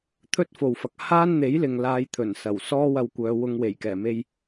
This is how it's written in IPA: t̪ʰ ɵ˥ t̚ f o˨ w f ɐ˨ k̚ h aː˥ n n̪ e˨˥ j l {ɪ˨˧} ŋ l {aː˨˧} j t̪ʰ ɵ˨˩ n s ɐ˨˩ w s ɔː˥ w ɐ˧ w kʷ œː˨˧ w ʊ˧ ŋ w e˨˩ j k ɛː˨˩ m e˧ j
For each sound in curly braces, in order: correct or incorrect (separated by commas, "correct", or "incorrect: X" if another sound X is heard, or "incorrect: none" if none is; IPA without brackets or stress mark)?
incorrect: ɪ˨, correct